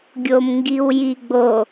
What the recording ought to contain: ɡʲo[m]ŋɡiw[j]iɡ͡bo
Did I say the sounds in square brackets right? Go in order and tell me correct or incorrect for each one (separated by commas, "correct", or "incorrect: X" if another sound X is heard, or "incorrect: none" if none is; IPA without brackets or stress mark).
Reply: correct, correct